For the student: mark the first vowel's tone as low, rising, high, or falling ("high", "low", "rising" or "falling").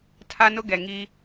high